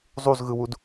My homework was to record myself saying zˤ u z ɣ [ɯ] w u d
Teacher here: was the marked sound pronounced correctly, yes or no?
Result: yes